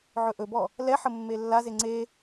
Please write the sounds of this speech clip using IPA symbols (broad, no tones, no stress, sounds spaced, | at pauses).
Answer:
ʕ ɵ ʔ ɵ b ɔ | l ɛ ħ ə mː e lː a z e ŋ͡ǀ e